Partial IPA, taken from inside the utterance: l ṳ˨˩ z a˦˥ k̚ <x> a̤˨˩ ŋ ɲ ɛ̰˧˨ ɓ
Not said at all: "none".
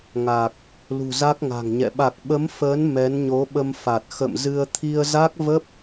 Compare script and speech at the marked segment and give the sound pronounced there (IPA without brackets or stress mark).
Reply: ŋ